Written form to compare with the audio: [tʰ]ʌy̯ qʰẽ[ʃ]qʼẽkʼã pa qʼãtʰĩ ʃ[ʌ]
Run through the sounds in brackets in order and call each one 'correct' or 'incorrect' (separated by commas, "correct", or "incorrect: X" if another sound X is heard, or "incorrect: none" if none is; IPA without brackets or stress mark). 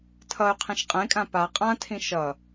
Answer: correct, correct, correct